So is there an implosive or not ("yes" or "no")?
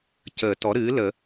no